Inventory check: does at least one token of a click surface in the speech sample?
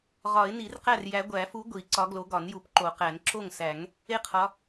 yes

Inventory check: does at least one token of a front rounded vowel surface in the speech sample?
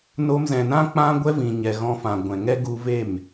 no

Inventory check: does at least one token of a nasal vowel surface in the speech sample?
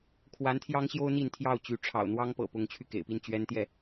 no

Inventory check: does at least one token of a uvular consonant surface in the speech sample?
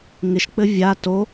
no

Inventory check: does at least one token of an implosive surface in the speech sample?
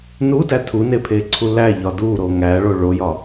no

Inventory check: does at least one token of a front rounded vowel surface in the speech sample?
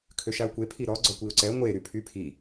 yes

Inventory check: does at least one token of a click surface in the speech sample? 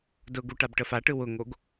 no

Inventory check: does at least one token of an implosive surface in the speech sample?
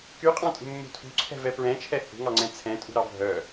no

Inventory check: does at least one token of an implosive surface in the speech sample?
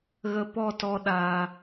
yes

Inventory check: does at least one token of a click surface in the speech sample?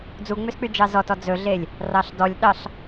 no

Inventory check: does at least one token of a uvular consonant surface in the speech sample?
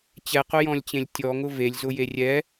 yes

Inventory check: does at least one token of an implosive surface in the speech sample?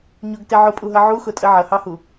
no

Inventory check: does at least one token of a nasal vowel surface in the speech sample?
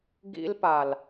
no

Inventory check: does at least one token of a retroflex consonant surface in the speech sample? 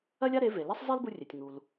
no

